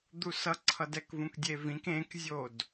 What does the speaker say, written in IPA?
d̪ u s ʌ ǀʰ ʌ d ɛ k v ũ k dʲ e v ĩ k ẽ k zʲ o d

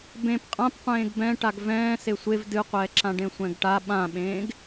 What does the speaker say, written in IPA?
b ẽ p qʼ ã p qʷ ẽː ɡ b ɛ̃ ʈ a ɡ v ɛ̃ː s e sʷ e v d ɨ qʷ ɛː ǁ ã ɖ ẽ sʷ ɛ̃ ɡ ʈ a ɓ ã ɓ ẽː ɡ

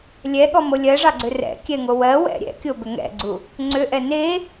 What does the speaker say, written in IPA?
lʲ ɛ ɠ ɔ m o lʲ ɜ ʐ ɑ ɡ͡ǀ ʏ r ɛ̰ kʲ ɛ ŋ o w ɜ w ɛ̰ ɾʲ ɛ̰ kʲ o b ʏ ŋ ɛ̰ ɡ͡ǀ u | ŋ͡ǀ ʏ ʔ ɛ n e

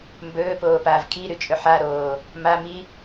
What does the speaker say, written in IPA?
m b ɵː p oː p aː v kʰ i ɾ ʉ t͡ʃʼ ɵ ħ a ɾ oː | m a m i

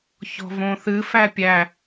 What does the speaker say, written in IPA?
ç ɔ̤ v õ θ ɨ f æ pʲ æ

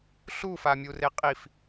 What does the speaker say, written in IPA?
ɬ u f a mʲ u r e qʼ i f

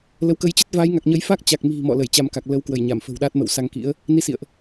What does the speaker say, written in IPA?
l ə˨˦ w k ə˧ j t͡ɕ ə˦˥ t̚ v aː˨˦ j ŋ a˨˩ k̚ ɲ ə˨˦ j f a˦˥ k̚ t͡ɕ a˨˩ k̚ m i̤˨˩ m ɔ̰˧˨ l ə˧˩ j t͡ɕ a˧ m k a˨˩ k̚ l ə˨˦ w k w ə˧˩ j ɲ a˧˩ m f ə̤˨˩ w ɗ aː˦˥ t̚ m ə̰˧˨ w s a˧ ŋ k ḭ˧˥ ə̯ | n i˧ s ḭ˧˨ ə̯ ʔ

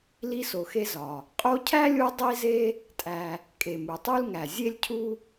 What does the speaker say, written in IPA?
l i˦ s o˨ x e˦ z ɒ˩ | qʼ o˦ cʰ æ˥ lʲ u˦ dˤ i˥ z e˥ | tʼ æ˨ | kʼ e˨ m u˨ tˤ u˥ l ŋ æ˨ zʲ e˥ lʲ cʰ u˥

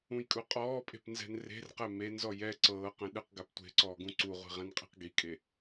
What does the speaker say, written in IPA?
ũ j kʼ u qʼ ɔː pʼ e̤ p n z ɛ̤ n r e̤ r q ɛ m e n z ɔ j ɛ ǀ ɤː q ɛ̃ ɗ ɯ q ɡ a p tʷ e̤ ǀ ɔː ɡ ũ ǀ u ʁʷ i̤ ʁ ɛ̃ n qʼ e̤ q ɡ i kʼ e

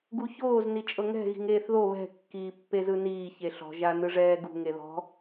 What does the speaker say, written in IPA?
ɡ u ç oː z n i t͡ʃʼ ɤ ŋ ɛ̤ ɣ i̤ ŋ eː θ ð o β ɛ̤ kː iː pː e z ɯ n iː ç e ɬ ɔ̤ ʒ a n ɯ ʐ ɛː ɡ ṳ ŋ e ð ɔ̤

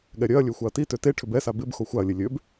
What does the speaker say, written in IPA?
ɠ ɛ ɾʲ œ ɐ̯ lʲ ø xʷ a ɐ̯ t i t ø t e ʈʰ ʏ b ɛ s a b ɪ b x o xʷ a ɐ̯ lʲ e lʲ ø b

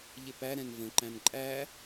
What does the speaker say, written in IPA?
ʎ ɪ p æ ɾ ɛ̃ n v ə̃ ǃ æ̃ n ǃʼ æ

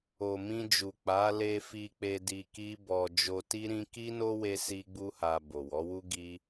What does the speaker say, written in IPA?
o˨ m ĩ˧ d͡ʒ u˨ k͡p a˨˦ l e˧ f i˧ k͡p e˧ d i˧ k i˦ b ɔ˧ d͡ʒ o˧ t i˦ ɾ ĩ˦ k i˦ n o˦ w e˧ s i˦ ɡ͡b u˦ h a˧ b o˨ w ɔ˨˦ w u˦ ɡ i˦

